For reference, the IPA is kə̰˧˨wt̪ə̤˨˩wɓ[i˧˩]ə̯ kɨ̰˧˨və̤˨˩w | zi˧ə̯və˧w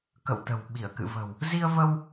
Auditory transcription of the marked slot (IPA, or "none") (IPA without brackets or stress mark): i˧˩